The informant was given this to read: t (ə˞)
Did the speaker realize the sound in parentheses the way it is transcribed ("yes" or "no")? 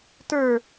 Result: yes